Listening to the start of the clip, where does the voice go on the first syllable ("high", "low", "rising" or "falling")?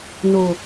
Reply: low